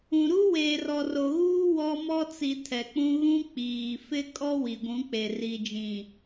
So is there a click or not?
no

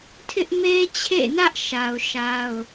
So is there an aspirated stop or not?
yes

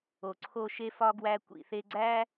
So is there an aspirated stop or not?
yes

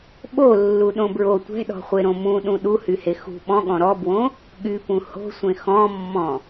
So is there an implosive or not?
yes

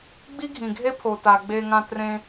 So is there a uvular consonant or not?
no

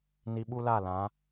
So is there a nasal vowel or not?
yes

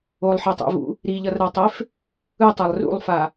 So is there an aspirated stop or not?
no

